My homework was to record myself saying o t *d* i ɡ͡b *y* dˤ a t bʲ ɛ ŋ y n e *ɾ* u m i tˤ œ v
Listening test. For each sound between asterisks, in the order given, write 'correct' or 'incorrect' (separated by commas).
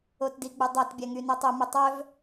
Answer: correct, correct, incorrect